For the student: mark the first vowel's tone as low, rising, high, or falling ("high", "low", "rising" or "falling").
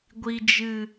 high